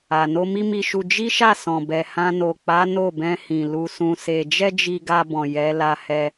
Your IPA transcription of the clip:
a˨ no˧mi˦mi˧ʃu˧ d͡ʒi˦ʃa˦˨ sɔ̃˨bɛ˨hã˧ no˨k͡pa˨˦ no˦˨bɛ̃˧hĩ˨ lu˧sũ˧se˧ d͡ʒɛ˦d͡ʒi˧ɡa˧bɔ̃˨ jɛ˨˦ la˧hɛ˧

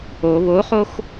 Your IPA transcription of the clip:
o βoχox

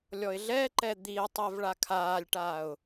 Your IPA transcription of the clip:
lʲɔɪ̯ɮɛǃɛ d̪iə̯tˤɛv ɭakʰaːlʲʈaːʊ̯

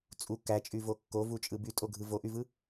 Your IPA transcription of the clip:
t͡sʼu kæt͡ʃʼyvo kːovut͡ʃʼɯ bytʼoɡʱɯ voʔyvɯ

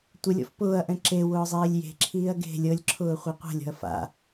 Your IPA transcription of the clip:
tʷəlʲɔ̰f pʊːɐ̯ʔɛ̃ ǁe wʊːzˤiːlʲje̤ǁʰiːɐ̯ ɡe̤ lʲɤlʲǁʰʊː χʷiqʷa̤lʲɔ̤ɐ̯ fa̰

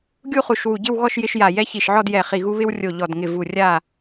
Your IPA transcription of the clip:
ɡʲu˥˨χu˧˩ʃwu˧˩ɟɪ˥˨w ɣɔ˥˨ʃ jɪ˦ʃja˧˩ jɛ˦çi˧˩ʃʕɔ˥˨djɛ˧˩ χi˧˩ɣu˦ βɪ˦wrʲo˧˩ ʎɔ˧˩dŋɪ˧˩ vu˧˩rʲa˥˨

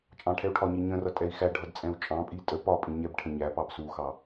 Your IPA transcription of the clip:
t͡ʃʼɑ̃ʈʰɛu̯ʈʰɒɲi ɲə̃rʌ tʼɛi̯xæɖʱʌd t͡sʼɛ̃u̯t͡ʃʼɑ̃pʼi tʼə pɒpʼĩ ɲɛbʈʰə̃ ɲæpɑb suxɑ

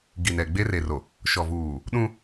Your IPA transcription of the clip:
ɡi˨nɛ˨ ɡ͡be˦re˨ro˨ | ʃɔ˨vuː˨ | ɗũ˦

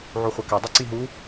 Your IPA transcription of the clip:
ʕuχʷɐkɛdˤi ǀiɦu

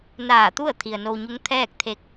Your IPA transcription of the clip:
naː˧˩t̪u˥˨ə̯ t̪ʰi˩ə̯no˧wɲu˧˥ŋ t̪ʰɛː˥˨k̚t̪ʰe˧˥k̚

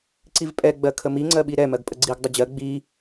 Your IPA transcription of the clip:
ǀivpʼɛ ɡ͡bɜkʰəmi ŋ͡ǀɜɓiɾɛ mɜɡpʼəɡ͡ǀiɡ dˤəd͡ʑɜ ɡ͡bi

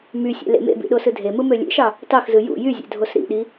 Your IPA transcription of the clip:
mysʲḛ lḛmḛbḭ ɗosɯdʱemɯ mølʲḛʃɑ | tɑxzɯ jṵ jyzʲḛ dʱosɾḭɗi

